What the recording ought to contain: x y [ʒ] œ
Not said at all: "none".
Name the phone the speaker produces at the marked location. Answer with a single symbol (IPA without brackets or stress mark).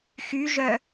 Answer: ʒ